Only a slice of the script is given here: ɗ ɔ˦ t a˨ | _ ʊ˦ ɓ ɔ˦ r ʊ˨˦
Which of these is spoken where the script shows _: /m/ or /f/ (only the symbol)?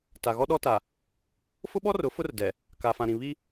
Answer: f